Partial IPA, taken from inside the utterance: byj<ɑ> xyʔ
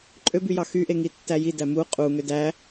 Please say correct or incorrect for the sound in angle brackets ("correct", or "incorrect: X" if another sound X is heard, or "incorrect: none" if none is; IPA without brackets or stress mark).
correct